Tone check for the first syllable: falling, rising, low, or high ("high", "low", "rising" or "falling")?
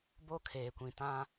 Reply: high